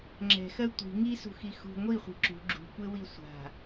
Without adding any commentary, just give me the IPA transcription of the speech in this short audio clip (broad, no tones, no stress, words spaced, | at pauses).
ŋ͡ǁɛ̤xɜ tʷi̤ ŋisṳxi xṳ ŋʷiχʷi̤ ǁṳ ɡ͡ǁṳkʷewi sʷa̤